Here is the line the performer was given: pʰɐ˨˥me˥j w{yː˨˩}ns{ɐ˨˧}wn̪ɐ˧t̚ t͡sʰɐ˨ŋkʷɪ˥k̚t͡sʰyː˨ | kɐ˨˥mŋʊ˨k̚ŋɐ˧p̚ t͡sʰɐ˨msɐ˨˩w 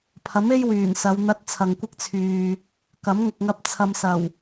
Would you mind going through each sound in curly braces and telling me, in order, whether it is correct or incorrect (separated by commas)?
correct, correct